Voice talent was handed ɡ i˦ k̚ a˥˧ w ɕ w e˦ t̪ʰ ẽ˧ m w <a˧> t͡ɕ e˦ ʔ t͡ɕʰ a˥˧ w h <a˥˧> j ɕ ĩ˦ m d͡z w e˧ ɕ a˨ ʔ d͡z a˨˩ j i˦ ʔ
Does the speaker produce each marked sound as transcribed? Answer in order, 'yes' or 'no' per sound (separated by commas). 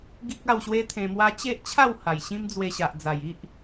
no, no